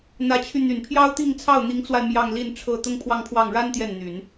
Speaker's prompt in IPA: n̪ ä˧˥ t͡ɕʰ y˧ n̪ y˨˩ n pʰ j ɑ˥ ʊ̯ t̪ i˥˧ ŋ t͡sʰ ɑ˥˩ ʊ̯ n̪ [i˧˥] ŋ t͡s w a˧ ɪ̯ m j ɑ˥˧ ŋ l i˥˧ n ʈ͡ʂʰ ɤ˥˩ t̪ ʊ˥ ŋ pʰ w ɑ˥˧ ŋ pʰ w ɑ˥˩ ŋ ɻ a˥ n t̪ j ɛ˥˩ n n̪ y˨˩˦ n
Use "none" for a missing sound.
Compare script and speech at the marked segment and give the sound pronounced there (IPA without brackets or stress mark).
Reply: i˧˥